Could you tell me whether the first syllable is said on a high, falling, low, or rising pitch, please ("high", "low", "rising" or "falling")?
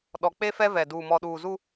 low